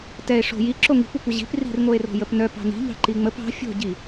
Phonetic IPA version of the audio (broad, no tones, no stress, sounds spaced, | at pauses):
t ɛ e̯ ʂ o̤ j i ǁ o ŋ i̤ kʷ ɛ kʷ ə ʑ i̤ p r i̤ r ŋ o e̯ r o̤ j ə p n œ p ɑ̤ n i̤ ʎ ɑ̤ ǃ i ŋ͡m ə p ɑ̤ fʲ o̤ ɟ i